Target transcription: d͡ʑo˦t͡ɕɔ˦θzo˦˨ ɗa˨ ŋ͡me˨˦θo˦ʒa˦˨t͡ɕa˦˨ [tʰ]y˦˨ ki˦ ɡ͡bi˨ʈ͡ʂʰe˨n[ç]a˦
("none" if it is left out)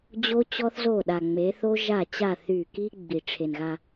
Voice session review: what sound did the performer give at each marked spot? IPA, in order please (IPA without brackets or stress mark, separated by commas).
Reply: θ, ɣ